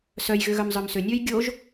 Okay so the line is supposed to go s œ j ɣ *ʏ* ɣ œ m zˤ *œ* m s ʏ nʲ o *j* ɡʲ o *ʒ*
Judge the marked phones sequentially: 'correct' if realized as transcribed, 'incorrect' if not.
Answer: correct, correct, correct, correct

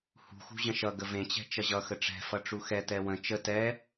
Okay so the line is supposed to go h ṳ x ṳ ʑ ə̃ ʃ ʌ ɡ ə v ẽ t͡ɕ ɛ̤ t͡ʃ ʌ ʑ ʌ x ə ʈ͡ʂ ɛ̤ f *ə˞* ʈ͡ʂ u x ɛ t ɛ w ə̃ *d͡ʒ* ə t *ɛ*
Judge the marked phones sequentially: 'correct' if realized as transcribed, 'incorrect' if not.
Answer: incorrect: ʌ, incorrect: t͡ʃ, correct

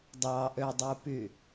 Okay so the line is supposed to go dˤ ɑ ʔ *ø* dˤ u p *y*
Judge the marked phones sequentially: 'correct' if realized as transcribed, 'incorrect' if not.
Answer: correct, correct

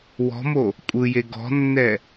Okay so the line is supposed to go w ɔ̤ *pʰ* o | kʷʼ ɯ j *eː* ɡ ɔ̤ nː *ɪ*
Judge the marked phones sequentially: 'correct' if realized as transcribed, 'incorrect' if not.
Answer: incorrect: m, incorrect: e, incorrect: ɛ

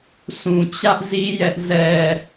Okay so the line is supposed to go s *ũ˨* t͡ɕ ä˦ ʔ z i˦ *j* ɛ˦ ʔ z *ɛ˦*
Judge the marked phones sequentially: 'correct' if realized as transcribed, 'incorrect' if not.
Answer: correct, correct, correct

